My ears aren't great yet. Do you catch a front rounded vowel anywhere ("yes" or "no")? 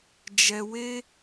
no